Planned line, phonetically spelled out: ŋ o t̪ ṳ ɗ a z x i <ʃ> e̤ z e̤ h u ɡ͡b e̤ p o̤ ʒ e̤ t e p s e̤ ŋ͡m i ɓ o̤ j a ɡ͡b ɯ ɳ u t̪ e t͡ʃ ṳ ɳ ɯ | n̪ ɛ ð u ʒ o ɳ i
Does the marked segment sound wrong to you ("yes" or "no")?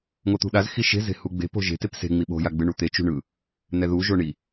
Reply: no